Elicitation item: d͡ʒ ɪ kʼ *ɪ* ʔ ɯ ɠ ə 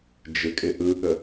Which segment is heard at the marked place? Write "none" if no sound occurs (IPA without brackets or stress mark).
ɪ